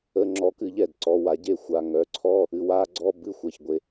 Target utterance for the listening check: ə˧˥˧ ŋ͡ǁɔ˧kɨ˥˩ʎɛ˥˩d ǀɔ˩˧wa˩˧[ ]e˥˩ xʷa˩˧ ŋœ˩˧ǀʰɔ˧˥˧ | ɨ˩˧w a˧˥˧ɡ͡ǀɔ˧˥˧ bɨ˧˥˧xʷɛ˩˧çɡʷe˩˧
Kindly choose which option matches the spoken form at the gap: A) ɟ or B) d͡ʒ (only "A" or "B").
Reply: A